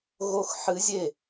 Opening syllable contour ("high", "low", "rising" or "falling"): falling